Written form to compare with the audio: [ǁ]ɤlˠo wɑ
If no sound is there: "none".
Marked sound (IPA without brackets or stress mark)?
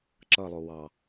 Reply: ǁ